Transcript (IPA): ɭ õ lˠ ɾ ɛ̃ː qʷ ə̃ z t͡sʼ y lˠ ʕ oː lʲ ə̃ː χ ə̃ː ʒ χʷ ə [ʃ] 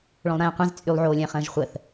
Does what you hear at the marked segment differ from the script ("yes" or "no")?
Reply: yes